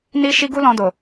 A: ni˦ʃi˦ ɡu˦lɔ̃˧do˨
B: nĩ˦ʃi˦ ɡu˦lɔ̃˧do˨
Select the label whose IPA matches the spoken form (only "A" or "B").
A